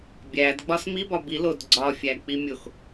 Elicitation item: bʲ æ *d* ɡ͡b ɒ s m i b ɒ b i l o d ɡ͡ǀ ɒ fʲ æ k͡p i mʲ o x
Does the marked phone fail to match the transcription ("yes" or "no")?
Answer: no